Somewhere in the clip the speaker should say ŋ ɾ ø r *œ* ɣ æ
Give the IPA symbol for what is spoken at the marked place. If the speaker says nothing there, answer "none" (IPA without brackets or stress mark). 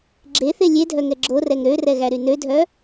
ɛ